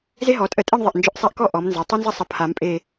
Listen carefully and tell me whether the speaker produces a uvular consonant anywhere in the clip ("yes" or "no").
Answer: no